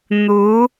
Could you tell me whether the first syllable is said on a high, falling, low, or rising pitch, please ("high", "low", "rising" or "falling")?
rising